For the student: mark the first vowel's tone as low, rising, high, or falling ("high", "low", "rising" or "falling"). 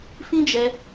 high